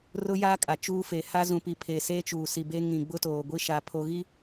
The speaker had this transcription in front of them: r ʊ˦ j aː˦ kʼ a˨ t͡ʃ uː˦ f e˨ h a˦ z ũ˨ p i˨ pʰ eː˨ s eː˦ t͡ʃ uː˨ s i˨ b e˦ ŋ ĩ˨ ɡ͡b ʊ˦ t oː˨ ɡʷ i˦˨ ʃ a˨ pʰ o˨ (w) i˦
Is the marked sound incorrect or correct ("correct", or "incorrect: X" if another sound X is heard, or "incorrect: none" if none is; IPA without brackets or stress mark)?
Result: incorrect: ɣ